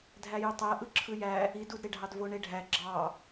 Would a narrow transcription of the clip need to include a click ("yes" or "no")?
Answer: yes